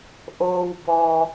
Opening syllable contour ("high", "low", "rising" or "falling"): low